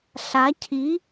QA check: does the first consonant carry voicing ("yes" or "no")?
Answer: no